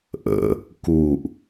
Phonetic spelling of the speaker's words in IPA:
ʔ ə̰ | k u ʔ

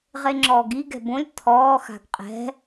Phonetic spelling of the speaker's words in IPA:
ʁ e ŋ͡ǁ ɔː ɡ i ɡ ɛ̤ b õ lʲ t̪ʰ ɔː x a̤ ɡ qʼ ɛ̤

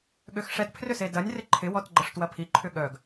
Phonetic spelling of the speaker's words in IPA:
ɠ ø x ʂ ɛ t pʰ r ʏ s e d ɐ nʲ r ɪ ǃʰ ɪ w ɔ t ɡ͡ǃ ə ʂ t w ɐ pʰ i ǃʰ ʏ ɠ œ ɡ

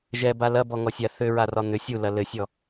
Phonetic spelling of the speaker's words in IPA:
ʒ ɛ b a l ɐ b ɔ ŋ ɔ sʲ a θ ʏ ɹ a r ɒ n̪ ʏ sʲ u l ɐ l ɘ sʲ ɔ

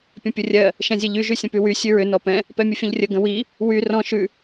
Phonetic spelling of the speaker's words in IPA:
pʲ ə̃ pʲ ə rʲ ɜ | ʃ ɛ̃ zʲ ɛ ʎ y ʒ y sʲ ə̃ p y w y sʲ ʉ ɹ ʏ n ɔ p ɛ̃ | p ɛ mʲ ə fʲ ə̃ ʎ rʲ ə ɡ ə̃ w i | w y r ɔ̃ ʃ ʉ

